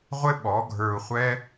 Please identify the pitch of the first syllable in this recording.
high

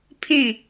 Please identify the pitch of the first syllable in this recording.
falling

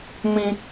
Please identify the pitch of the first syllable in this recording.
high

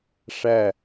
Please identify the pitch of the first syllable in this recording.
falling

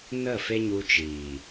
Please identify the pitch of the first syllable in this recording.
falling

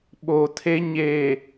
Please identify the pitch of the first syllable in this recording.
low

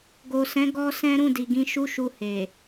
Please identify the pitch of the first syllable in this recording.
low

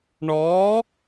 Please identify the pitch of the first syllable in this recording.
rising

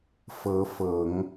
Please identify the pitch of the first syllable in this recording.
rising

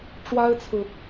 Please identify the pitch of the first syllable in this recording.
high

